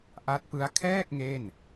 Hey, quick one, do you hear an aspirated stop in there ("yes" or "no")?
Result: yes